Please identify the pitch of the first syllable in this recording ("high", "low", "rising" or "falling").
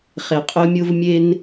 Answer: low